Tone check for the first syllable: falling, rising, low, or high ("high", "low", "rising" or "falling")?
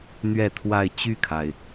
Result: falling